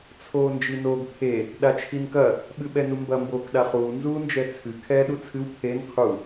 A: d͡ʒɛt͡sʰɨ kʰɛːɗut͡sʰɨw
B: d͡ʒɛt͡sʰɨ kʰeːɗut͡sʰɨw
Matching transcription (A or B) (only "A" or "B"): A